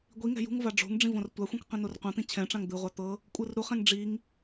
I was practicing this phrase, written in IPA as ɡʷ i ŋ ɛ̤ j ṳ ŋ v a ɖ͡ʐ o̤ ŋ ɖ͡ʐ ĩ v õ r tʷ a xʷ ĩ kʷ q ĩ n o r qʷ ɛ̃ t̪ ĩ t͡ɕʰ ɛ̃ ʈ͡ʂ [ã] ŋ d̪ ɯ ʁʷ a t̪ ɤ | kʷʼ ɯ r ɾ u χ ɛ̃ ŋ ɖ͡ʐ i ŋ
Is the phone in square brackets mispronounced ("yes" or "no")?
no